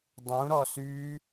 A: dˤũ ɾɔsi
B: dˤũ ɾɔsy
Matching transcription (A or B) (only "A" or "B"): B